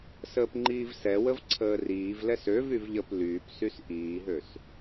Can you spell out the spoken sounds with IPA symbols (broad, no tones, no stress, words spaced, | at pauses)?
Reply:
səːpŋ͡ǃiːvsɛwəv ǀʰəːriːvlɛs øv yvʎəp lyːpsys ʔiːɦøs